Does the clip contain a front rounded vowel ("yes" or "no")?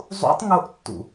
no